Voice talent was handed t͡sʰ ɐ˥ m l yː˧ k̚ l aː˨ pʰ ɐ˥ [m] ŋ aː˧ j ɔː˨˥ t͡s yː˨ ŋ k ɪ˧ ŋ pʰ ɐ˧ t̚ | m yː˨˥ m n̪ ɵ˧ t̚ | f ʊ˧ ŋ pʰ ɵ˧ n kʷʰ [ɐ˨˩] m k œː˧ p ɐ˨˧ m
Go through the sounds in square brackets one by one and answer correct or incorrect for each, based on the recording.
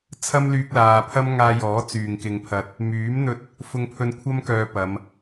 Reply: correct, incorrect: ɐ˥

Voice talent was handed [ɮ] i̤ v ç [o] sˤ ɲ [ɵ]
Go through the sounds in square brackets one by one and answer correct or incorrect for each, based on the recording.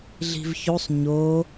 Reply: correct, correct, incorrect: o

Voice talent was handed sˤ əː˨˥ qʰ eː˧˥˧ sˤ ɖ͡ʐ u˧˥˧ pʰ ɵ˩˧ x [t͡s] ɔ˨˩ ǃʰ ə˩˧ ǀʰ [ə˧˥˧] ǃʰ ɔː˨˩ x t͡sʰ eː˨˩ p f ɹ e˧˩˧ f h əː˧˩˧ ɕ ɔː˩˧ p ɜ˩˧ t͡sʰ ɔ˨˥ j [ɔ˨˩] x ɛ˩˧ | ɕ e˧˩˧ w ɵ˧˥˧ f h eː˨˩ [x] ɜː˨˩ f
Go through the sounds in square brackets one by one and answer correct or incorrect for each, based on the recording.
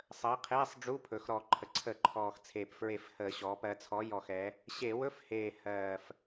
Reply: incorrect: ɾ, incorrect: ə˧˩˧, correct, incorrect: h

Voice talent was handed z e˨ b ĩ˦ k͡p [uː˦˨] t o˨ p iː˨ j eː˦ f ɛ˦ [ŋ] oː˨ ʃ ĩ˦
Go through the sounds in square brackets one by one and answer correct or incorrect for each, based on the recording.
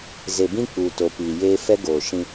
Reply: incorrect: uː˨, incorrect: ɡ

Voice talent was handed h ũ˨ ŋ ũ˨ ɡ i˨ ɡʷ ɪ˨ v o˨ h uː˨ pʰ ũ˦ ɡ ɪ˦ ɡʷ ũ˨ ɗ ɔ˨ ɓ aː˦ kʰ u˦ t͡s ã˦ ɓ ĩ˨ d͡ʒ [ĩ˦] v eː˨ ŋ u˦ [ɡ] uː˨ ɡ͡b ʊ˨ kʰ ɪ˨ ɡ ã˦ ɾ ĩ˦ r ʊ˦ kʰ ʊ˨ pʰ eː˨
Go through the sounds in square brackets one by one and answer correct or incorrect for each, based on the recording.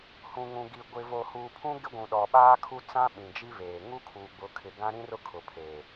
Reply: incorrect: i˦, incorrect: kʰ

